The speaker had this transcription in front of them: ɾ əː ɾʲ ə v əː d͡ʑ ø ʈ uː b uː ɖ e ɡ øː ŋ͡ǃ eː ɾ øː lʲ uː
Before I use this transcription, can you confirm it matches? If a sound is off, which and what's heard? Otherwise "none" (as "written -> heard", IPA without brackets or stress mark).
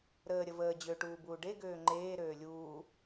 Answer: none